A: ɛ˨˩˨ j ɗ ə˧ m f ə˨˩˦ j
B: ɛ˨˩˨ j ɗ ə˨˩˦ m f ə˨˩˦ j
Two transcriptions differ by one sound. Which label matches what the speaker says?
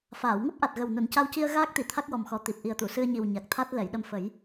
A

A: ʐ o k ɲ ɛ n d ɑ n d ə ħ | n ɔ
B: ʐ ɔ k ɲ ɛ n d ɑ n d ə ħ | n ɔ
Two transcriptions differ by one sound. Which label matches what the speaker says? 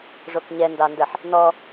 A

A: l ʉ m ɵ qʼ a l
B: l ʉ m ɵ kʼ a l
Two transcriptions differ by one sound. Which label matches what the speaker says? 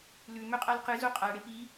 A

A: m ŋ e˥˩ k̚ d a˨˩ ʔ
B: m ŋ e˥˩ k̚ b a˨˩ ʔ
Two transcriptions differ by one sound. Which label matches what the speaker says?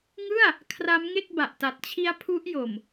B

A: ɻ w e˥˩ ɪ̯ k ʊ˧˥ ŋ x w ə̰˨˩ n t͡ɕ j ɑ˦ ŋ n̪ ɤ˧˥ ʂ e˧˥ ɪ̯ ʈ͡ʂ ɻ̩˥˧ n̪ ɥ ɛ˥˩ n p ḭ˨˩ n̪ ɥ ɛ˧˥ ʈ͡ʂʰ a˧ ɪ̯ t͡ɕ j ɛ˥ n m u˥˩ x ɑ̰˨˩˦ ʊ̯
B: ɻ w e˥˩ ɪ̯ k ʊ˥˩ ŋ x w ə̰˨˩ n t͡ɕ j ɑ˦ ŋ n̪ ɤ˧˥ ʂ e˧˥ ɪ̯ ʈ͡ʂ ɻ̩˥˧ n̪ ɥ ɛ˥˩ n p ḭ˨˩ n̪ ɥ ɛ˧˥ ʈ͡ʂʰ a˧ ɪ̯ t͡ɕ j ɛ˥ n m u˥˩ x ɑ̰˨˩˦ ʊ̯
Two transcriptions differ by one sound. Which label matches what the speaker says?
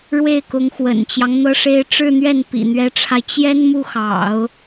A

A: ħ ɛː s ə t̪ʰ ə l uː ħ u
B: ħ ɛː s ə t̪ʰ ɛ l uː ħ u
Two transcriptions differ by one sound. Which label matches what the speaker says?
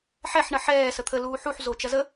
A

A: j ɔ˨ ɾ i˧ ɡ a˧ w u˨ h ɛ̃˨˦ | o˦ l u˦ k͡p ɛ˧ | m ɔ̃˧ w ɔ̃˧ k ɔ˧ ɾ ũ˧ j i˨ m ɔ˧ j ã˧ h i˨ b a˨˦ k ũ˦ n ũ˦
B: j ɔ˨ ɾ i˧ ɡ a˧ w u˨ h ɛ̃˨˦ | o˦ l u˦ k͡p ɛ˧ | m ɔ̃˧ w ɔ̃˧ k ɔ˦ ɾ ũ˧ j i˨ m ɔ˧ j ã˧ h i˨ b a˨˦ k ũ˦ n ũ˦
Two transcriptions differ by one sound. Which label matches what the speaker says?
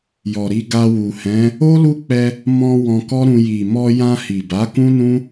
B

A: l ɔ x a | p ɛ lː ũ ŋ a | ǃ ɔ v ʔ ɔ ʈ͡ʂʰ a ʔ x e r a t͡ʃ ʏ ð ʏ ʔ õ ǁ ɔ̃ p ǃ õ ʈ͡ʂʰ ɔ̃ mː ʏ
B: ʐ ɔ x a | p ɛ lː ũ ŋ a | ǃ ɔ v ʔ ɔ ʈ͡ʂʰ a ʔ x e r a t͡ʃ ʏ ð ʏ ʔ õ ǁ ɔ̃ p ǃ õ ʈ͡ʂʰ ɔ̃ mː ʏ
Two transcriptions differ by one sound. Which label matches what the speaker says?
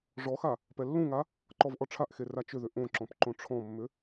B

